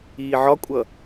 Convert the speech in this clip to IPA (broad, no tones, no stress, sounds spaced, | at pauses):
iː ʕ ɒ kʷʼ ʌ